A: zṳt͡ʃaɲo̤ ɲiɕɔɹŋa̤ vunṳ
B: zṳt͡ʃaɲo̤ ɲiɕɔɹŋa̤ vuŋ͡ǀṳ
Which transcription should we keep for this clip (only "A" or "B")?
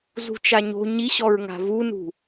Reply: A